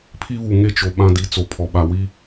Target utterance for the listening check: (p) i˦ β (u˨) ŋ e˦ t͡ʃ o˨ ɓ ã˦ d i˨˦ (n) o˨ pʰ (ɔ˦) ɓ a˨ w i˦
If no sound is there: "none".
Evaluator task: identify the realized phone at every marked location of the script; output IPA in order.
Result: pʰ, u˨, t͡s, ɔ˨

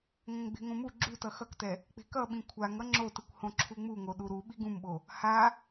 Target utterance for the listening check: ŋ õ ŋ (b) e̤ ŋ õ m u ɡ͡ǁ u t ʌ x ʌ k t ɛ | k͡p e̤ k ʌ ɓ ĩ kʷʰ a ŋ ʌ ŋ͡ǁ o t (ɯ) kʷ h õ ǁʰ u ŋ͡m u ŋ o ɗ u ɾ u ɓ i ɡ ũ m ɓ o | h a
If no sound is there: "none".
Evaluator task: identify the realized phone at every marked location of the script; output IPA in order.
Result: ɡ͡b, ɯ

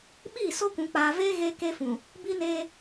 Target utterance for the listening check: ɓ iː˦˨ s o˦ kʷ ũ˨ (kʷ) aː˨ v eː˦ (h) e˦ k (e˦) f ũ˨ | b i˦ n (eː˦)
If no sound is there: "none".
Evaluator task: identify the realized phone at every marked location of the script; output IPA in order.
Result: k͡p, ɣ, e˦, eː˦

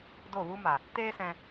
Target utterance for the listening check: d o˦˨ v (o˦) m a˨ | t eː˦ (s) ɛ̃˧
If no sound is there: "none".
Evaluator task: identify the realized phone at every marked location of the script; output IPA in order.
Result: u˦, s

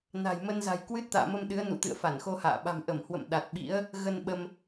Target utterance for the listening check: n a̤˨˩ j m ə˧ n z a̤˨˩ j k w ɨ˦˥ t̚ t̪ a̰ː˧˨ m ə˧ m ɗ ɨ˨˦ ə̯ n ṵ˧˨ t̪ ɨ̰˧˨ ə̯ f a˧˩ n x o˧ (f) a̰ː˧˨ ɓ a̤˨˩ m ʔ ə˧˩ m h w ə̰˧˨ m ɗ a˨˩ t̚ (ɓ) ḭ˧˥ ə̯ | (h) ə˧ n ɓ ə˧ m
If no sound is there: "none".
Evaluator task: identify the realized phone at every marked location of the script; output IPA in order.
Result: h, ɓ, ɣ

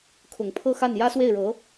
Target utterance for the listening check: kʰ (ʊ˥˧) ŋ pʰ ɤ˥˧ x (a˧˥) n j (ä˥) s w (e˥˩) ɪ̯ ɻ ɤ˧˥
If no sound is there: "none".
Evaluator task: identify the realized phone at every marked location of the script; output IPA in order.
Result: ʊ˨˩, a˥˩, ä˥, e˥˩

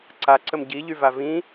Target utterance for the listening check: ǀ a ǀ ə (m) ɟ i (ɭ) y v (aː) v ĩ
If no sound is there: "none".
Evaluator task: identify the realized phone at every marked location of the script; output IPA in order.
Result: m, ʎ, a

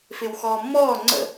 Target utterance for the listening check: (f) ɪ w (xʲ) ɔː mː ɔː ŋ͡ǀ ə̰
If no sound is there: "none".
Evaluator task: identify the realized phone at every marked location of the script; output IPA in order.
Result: f, x

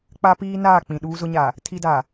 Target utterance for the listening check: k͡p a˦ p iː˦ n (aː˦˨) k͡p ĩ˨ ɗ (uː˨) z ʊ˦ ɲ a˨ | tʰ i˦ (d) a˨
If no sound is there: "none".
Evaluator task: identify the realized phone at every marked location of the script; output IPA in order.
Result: aː˦˨, uː˦, d

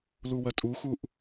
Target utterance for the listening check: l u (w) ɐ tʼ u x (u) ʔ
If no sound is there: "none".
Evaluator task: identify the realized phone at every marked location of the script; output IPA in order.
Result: w, u

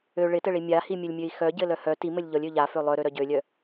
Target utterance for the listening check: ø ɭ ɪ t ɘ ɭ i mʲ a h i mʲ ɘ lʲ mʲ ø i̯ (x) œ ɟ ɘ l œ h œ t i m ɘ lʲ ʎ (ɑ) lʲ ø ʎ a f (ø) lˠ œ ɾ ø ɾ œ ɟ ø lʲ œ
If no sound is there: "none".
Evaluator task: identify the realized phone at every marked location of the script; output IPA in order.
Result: x, ɔ, ø

